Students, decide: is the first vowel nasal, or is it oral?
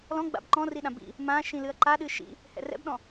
nasal